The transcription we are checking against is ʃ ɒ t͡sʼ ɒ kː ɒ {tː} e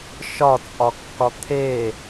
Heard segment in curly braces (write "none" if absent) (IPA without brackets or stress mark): t̪ʰ